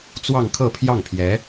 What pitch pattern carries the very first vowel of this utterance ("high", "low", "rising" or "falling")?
falling